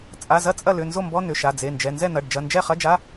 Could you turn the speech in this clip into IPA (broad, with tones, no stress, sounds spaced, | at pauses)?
t͡sʼ a˩˧˩ z ɐ˥˨ t͡sʼ ɐ˥˨ l ʏ˩˧˩ n z o˥˨ m b ɔ˧˥˧ n ʏ˩˧˩ ʃ a˩˧˩ d͡z e˩˧˩ n d͡ʒ ɛ˩˧˩ n z ɛ˥˨ n̪ ɐ˩˧˩ ɖ d͡ʒ ɐ˩˧˩ n d͡ʒ ɛ˥˨ χ ɐ˧˥˧ d͡ʒ a˧˥˧